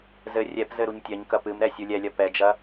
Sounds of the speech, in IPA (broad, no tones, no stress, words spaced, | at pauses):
zɘ rʲɛpzɘ ɾuɲtʲɐɲkɐ pɨmɾɛ sʲulʲɛlʲɐ pɛd͡ʒɐ